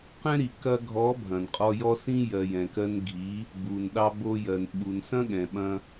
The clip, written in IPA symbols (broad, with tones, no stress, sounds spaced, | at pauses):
q ɛ̃˦ ɾ i˨ k ɐ˧ ɡʱ ɔ˨˦ bʱ ɐ̃˨ n qʼ ɔ˧ j ɔ˧ s ĩ˧ j ɜ˨ j ɛ̃˨ k ɜ˧ n ɡʱ i˨˦ | b u˨ n ɗ ɑ˧ b o˧ j ɜ˨ n ɓ u˨ n s ɐ̃˦ ɠ ɛ̃˨ ɓ ɐ̃˧